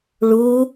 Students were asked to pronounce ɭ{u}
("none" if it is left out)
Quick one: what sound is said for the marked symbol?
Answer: u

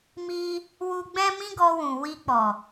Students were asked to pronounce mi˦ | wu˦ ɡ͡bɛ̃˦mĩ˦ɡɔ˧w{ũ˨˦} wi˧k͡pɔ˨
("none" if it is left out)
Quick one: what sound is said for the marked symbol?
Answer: ũ˨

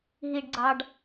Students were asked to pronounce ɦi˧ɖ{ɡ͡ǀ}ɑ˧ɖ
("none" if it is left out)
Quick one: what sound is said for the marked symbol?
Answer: ɡ͡ǀ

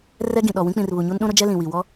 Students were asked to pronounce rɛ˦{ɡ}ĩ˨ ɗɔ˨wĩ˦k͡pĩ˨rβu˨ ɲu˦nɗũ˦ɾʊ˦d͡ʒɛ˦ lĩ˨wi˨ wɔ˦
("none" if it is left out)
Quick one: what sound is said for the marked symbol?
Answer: ɡ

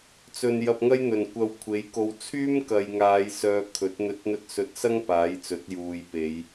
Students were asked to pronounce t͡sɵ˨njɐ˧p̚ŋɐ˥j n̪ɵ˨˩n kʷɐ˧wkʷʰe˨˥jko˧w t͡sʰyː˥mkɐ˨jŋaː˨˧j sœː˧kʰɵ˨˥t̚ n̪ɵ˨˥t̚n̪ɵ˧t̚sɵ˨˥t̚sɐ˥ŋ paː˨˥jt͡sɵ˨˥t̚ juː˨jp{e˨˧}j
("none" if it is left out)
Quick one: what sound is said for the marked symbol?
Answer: e˨˧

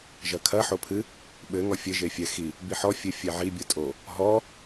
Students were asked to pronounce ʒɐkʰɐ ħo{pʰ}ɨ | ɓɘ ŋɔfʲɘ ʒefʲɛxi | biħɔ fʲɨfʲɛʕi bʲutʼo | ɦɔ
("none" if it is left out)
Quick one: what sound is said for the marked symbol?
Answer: pʰ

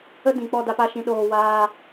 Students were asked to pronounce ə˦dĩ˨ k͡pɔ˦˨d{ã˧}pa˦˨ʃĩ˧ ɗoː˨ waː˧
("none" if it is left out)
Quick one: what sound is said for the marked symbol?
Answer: a˧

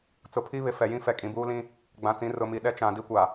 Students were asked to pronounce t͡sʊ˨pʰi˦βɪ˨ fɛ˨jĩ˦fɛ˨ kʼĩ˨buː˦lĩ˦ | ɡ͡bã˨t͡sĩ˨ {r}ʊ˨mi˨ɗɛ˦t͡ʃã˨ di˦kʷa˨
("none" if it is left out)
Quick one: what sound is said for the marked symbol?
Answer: r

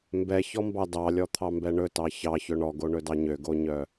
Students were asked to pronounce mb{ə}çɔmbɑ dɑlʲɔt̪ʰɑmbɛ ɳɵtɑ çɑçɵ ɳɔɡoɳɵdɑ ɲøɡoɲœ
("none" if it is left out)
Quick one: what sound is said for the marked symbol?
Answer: ɛ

